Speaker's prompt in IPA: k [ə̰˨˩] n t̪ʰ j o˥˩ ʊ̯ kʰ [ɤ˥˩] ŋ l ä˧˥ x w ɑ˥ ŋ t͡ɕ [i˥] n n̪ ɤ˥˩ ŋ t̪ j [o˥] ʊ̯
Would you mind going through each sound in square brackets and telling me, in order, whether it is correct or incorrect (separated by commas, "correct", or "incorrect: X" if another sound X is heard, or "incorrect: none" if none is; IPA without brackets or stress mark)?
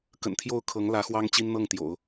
correct, incorrect: ɤ˧˥, correct, incorrect: o̰˨˩˦